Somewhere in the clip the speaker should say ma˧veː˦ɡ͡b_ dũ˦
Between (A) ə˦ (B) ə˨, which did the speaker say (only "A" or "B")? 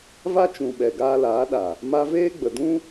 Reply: B